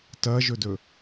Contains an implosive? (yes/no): no